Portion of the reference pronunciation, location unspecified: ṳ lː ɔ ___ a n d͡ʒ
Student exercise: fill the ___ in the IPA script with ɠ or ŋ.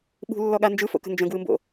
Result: ɠ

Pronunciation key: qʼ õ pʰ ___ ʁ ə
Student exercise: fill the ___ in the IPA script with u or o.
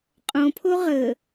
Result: o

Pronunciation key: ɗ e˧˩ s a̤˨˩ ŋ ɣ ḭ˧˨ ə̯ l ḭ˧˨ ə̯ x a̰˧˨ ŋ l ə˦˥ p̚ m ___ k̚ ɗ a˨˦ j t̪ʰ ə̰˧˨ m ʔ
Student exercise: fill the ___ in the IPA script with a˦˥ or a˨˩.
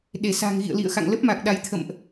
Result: a˨˩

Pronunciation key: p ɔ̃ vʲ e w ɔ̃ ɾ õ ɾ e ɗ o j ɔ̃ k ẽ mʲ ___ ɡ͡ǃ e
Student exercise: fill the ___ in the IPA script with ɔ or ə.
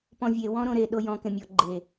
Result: ɔ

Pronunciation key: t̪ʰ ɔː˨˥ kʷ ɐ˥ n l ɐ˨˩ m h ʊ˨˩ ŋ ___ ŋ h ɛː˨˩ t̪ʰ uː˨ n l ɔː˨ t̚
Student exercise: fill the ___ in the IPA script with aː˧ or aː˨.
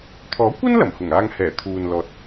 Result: aː˧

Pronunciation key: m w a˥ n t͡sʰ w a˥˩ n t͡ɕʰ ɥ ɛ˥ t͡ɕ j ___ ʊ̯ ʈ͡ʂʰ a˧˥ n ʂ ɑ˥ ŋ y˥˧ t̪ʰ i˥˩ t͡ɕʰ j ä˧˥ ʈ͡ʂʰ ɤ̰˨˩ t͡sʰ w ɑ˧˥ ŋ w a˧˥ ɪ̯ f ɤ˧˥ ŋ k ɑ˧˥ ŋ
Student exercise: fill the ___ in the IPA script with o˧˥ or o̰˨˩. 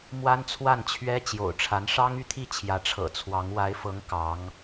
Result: o̰˨˩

